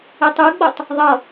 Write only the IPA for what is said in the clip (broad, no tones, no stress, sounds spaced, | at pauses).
e tˤ ɯ ɡ͡b o tˤ | ðˤ ʌ